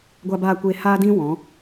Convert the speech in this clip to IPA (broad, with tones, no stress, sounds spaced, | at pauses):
ɡʷ a˧ b aː˧ kʷ eː˧ h aː˦ d ĩ˦ w ɔ̃˨˦